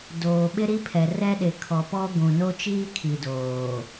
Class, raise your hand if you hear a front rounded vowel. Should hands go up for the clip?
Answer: no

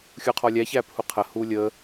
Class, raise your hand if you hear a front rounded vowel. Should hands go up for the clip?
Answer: no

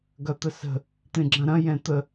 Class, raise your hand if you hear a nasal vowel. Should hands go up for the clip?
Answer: yes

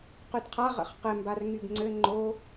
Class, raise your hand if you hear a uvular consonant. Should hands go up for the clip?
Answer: yes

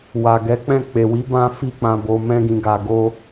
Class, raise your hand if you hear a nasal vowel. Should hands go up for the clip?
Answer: yes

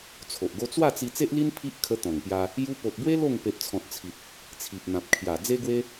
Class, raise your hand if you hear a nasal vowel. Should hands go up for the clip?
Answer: yes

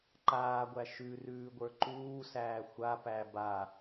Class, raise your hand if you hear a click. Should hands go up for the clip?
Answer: yes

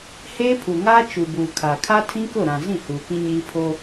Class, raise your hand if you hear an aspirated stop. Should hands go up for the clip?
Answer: yes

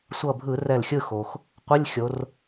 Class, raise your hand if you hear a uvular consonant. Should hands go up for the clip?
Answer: yes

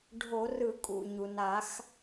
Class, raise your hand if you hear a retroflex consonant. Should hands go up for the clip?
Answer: yes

